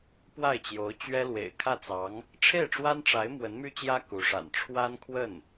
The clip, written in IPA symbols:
p w a˥˩ ɪ̯ t͡ɕ j o˧˥ ʊ̯ t͡ɕ ɥ ɛ˥ l w ḛ˨˩ ɪ̯ kʰ ä˥˩ t͡s ɑ˧˥ ŋ | ʈ͡ʂʰ e˥˩ ɪ̯ ʈ͡ʂ w a˥ n ʈ͡ʂ a˧˥ ɪ̯ m w ə˧˥ n m y˥ t͡ɕ j ä˥ k u˧˥ ʂ a̰˨˩ n ʈ͡ʂʰ w a˥ n kʰ w ə˥˩ n

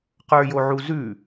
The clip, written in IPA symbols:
q ə˞ j o ʕ u z ʉ

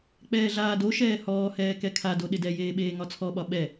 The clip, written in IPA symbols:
k͡p ɛː ɮ aː d o ʃ ɛː h ɔː h ɛː k ɛ kʰ a d o ɗ ɪ d ɛ j eː ɓ eː ŋ ɒ t͡sʰ ɔ ɓ ɒ ɓ ɛ

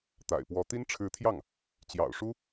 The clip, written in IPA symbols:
t̪ a̰˨˩ ɪ̯ p w ɔ˧˥ t̪ i˥ n ʈ͡ʂʰ ɻ̩˧˥ t̪ʰ j ɑ˥˩ ŋ | t͡ɕ j ɑ̰˨˩ ʊ̯ ʂ u˥

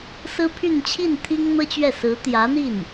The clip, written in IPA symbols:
s ɹ̩˥ pʰ y˥˧ n t͡ɕʰ i˥˩ n t̪ʰ i˥ ŋ n̪ ɤ˥ t͡ɕ ɥ ɛ˥˩ s ɹ̩˧˥ t̪ j ä˧˥ n̪ i˥˩ n

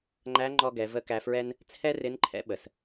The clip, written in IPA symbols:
ŋ͡ǃ æ˧˥ ŋ͡ǃ ɔ˧ ɡ ɛ˩˧ v ə˧ k æ˧ f ɹ ɛ˥ n | t͡sʰ ɛ˥ r ɪ˧˥ n ǃʰ ɛ̰˧˥ ɓ ə˩ s

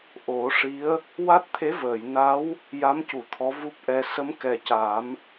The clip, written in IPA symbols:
ʔ o˨˩˦ ʂ i˧˥ ə̯ | w a˦˥ t̚ t̪ʰ e˧˥ v əː˨˩˨ j n a˧˥ w | j a˧˥ m c u˨˩˨ t̪ʰ ɔ˧˥ v u˦˥ p̚ ʔ ɛ˧ s ə˧˥ m k ɛ˨˩ c a˨˩˦ m

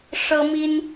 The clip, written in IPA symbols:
ʂ ɤ˦ m i˦ n

